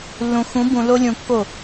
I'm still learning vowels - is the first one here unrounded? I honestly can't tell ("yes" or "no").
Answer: no